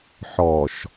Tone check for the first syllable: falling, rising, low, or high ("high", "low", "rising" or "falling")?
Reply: low